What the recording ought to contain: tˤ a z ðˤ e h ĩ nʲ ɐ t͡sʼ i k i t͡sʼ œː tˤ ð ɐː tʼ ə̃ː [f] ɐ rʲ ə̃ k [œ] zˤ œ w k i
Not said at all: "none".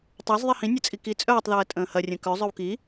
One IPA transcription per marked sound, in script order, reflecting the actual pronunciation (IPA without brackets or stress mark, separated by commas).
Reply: h, œ